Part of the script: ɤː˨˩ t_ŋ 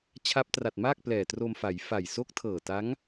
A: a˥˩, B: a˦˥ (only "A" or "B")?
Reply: B